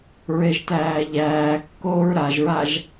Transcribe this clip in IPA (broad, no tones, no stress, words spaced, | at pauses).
ɹeʒtæːʎæːkːoːɹ ɾaʒɹaʒ